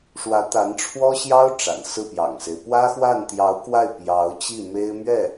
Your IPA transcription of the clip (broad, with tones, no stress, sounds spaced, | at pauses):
ʂ w ä˧˥ t̪ a˧˥ n ʈ͡ʂʰ w ɔ˥ ɕ j ɑ˥ ʊ̯ ʈ͡ʂ a̰˨˩ n s ɹ̩˥˩ p j ɑ̰˨˩ ŋ s e˦ ɪ̯ p w ä˥ x w a˥˩ n t̪ j ɑ˧˥ ʊ̯ k w a˥˩ ɪ̯ p j ɑ˧˥ ʊ̯ t͡ɕ i˥˩ m e˥ ɪ̯ m ɥ ɛ˥˩